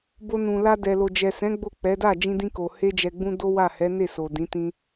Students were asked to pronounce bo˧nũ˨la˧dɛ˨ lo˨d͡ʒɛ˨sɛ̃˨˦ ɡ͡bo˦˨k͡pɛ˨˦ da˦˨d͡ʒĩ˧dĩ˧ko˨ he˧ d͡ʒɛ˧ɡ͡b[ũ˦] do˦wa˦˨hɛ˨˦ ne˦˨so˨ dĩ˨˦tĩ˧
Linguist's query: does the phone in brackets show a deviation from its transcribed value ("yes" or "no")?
no